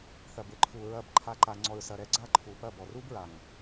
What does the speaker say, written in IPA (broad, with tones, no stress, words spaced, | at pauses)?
θɐ˨bɘ˨ ǃʰu˨ ɹɐ˦˨bǃʰa˦ǃa˧ ŋ͡ǀɔ˧ɹsɐ˧ɾɛ˧ ɡ͡ǀa˦ǃʰu˨pɐ˦˨bɔ˨ ru˦bɹa˨ŋ